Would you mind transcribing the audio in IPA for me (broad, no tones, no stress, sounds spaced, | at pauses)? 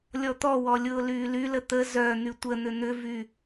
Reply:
lʲ ɔ t̪ ɔ w ɔ lʲ ʊː l yː l y l ə t̪ ə z œ n̪ y tʷ ə n̪ ʏ n̪ ʏ v y